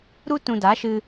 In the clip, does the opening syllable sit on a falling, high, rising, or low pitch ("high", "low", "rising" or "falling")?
high